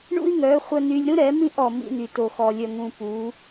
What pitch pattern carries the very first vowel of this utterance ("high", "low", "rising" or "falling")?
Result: high